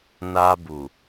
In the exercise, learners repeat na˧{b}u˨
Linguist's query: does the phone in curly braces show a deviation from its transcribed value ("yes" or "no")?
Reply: no